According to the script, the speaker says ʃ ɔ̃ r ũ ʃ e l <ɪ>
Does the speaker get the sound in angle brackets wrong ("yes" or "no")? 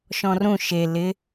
no